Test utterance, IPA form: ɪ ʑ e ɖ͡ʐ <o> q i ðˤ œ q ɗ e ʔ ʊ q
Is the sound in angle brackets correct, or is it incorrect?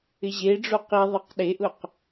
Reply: correct